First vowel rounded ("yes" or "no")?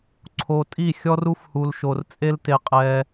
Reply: yes